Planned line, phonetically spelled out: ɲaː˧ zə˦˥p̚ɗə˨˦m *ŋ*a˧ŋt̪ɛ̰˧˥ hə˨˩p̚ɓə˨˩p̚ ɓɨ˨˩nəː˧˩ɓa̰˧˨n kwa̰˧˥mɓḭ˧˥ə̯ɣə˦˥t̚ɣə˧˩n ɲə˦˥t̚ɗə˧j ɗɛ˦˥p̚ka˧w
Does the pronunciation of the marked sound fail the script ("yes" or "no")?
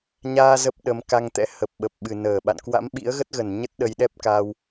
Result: yes